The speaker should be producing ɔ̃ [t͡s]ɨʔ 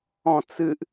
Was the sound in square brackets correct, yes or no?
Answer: yes